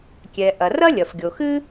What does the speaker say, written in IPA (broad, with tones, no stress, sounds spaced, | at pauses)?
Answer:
kʲ ɛ˩ ʔ ɐ˩ r ɐ˥ lʲ ɐ˩ f ɡʲ o˩ x ɨ˥